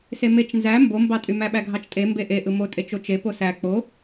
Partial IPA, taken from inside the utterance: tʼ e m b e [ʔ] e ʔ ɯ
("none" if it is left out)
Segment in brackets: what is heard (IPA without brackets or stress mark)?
ʔ